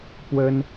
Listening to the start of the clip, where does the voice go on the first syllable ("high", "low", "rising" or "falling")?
high